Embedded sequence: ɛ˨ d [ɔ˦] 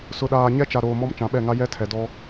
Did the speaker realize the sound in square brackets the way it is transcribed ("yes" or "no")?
yes